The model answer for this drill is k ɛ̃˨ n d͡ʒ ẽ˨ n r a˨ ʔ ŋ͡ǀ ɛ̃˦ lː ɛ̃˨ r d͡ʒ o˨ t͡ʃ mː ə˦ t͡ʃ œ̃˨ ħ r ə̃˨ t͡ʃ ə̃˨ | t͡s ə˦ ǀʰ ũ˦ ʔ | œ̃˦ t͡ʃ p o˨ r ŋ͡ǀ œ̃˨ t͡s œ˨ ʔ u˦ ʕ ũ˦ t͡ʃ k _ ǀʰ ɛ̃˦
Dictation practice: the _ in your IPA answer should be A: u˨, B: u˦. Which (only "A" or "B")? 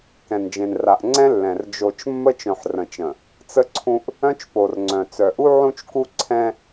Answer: B